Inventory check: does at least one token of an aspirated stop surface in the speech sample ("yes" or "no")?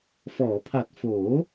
yes